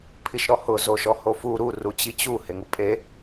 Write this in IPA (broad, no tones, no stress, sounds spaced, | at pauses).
pʰ i ʃ ɾ ɔ h ʊ z o ʃ ɔ h o f u ɾ u r u t͡ɕ i t͡ɕ u h e ŋ u pʼ e